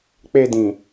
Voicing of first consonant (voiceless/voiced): voiceless